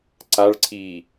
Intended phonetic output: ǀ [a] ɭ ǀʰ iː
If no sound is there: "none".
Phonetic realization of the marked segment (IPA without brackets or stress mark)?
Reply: a